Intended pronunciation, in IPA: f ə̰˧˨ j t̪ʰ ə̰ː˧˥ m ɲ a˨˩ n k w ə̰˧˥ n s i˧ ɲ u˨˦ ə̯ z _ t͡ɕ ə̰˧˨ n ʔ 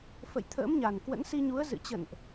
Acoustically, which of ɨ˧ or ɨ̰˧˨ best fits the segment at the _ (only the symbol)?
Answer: ɨ̰˧˨